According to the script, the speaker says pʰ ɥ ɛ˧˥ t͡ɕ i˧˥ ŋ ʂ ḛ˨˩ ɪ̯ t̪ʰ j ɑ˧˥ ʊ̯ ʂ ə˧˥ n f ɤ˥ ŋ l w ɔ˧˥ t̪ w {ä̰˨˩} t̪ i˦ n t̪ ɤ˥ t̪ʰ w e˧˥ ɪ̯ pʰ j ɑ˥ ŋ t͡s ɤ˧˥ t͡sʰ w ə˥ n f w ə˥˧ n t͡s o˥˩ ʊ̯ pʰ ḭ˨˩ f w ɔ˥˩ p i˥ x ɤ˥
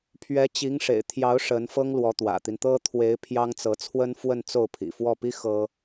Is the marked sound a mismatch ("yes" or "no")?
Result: no